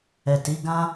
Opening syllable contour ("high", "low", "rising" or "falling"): low